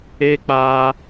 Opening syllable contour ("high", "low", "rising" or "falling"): high